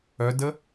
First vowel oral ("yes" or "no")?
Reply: yes